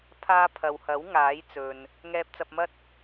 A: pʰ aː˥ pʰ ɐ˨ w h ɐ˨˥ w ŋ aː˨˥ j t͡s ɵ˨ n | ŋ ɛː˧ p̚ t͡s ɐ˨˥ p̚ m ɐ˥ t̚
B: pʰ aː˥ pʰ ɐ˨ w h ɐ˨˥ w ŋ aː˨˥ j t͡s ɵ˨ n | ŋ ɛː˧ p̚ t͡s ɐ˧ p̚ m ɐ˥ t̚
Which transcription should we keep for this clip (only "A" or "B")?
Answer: B